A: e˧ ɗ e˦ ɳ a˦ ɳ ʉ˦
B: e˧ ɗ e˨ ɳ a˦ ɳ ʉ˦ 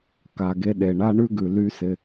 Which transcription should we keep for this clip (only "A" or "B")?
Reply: B